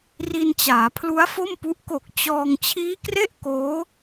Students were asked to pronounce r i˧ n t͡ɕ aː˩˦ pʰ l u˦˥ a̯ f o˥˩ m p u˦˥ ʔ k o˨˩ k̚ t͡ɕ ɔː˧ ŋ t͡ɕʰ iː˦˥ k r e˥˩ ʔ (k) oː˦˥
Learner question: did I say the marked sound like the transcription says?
yes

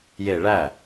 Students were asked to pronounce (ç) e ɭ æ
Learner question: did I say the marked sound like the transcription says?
no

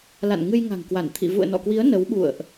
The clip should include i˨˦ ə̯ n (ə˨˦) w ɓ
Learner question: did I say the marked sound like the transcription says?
yes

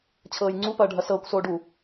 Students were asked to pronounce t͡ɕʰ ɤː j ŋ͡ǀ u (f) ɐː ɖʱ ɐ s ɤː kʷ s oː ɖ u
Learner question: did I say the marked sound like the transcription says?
no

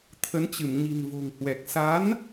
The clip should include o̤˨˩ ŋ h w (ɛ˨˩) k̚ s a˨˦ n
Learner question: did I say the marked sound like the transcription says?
yes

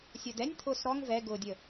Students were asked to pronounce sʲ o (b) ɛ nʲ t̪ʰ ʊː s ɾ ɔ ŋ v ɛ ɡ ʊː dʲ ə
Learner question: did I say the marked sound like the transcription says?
no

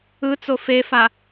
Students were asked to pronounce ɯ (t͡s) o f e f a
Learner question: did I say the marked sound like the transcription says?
yes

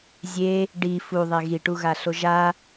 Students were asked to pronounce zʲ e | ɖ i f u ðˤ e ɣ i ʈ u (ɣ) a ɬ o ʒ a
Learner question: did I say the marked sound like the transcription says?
yes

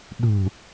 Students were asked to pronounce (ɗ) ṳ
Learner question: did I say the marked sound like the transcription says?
yes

